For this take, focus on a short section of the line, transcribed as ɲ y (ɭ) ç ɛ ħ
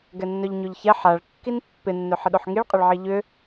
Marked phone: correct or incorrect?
incorrect